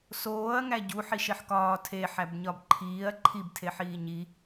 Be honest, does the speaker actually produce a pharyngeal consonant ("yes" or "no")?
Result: yes